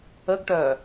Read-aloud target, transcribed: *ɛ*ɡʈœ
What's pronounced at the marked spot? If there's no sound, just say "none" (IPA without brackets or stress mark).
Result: ə